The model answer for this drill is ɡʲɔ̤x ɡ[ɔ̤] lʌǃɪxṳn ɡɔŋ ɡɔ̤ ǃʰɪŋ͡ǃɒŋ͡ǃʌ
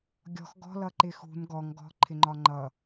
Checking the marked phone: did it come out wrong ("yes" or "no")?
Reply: no